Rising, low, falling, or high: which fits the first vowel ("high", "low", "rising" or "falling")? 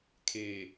low